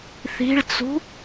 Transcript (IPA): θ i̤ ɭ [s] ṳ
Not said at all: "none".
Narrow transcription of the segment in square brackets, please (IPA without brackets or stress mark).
t͡s